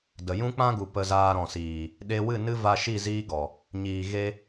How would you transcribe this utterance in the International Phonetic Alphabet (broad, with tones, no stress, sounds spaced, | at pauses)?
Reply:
d ə˨ j ũ˦ k͡p ã˦ ɡ u˨ p ə˧ z aː˧ ɾ ɔ̃˨ s iː˨ | ɗ e˧ w ɨ˦˨ n ɨ˦ v a˧ ʃ i˦˨ z iː˦ ɡ ɔ˨ | ɲ iː˨ ɣ e˧